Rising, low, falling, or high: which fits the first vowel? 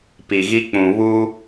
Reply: low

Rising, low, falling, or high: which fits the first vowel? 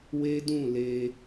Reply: high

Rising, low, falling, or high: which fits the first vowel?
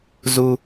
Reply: high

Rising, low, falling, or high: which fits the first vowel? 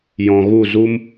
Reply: low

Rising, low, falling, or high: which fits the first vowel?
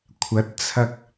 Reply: rising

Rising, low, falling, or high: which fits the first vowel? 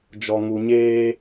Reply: low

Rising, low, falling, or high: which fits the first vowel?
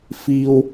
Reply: high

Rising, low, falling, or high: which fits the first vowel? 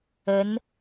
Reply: rising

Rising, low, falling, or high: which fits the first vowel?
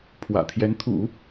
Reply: low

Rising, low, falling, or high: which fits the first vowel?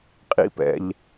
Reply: high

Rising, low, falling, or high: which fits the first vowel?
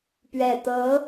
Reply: low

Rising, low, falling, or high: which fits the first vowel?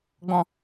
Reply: low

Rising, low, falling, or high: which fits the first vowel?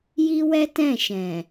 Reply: high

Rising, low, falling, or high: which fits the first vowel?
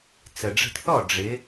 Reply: low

